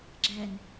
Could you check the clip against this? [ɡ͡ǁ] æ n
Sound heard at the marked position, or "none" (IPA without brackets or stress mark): ɡ͡ǁ